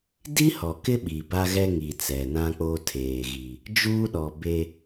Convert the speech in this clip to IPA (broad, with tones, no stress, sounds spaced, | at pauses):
d i˦ h ɔ˨ k ɪ˦ ɓ i˨ b a˦ ɣ ɛ˦ ŋ i˨ t͡s ɛ˨ n ã˦ k͡p o˦ tʰ eː˨ ɣ i˨ | d͡ʒ uː˦ ɗ ɔ˨ b e˦